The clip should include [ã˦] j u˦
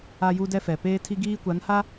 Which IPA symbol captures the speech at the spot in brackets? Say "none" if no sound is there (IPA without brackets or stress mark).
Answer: a˦